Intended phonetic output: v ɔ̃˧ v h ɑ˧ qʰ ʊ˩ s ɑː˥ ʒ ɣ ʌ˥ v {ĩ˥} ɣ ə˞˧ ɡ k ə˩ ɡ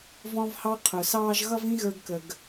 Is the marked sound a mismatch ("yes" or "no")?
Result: no